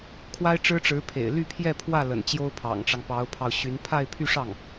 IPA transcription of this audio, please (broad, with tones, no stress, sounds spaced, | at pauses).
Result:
kʰ w a˥ ɪ̯ ʈ͡ʂ ɻ̩˥ ʈ͡ʂ ɻ̩˧˥ pʰ ḛ˨˩ ɪ̯ l y˥˧ pʰ j ɛ˥˧ pʰ w ä˥˩ l ə̰˨˩ n t͡ɕ j o˥ ʊ̯ pʰ ɑ̰˨˩ ŋ ʈ͡ʂ ɑ˦ ŋ p ɑ˧˥ ʊ̯ pʰ ɑ˧ ʊ̯ ɕ y˧˥ n pʰ a˥˧ ɪ̯ pʰ y˥˧ ʂ ɑ˥˩ ŋ